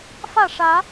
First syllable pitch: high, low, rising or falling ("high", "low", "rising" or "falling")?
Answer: falling